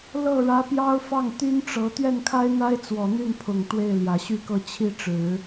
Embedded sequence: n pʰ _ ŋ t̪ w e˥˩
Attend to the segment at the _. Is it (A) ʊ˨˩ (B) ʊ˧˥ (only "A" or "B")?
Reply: A